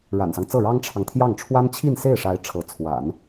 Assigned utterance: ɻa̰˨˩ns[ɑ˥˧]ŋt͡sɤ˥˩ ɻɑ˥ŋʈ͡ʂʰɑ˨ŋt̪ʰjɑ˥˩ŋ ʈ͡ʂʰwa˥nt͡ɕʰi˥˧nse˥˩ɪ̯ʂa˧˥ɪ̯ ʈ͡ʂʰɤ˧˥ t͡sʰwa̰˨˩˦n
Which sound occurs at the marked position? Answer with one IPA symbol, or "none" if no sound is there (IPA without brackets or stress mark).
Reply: ɑ˦